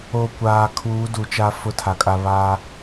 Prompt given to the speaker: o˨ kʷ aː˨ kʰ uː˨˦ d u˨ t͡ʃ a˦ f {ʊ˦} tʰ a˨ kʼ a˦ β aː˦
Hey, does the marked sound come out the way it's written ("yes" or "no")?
yes